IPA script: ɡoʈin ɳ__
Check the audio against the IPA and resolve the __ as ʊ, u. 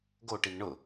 ʊ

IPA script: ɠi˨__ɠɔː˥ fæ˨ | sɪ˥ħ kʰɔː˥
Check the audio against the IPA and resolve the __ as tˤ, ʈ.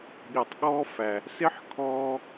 tˤ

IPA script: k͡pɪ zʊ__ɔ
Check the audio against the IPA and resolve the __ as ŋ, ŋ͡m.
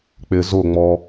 ŋ͡m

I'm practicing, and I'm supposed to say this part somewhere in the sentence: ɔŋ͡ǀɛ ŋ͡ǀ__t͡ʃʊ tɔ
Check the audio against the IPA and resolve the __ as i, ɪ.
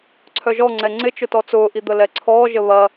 ɪ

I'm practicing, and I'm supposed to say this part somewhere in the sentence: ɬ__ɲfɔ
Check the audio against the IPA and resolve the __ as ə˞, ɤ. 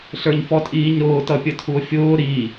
ə˞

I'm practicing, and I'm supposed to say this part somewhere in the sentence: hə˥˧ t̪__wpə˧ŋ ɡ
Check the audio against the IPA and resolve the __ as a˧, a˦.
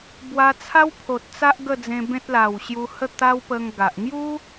a˦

